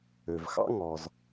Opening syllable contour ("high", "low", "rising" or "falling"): low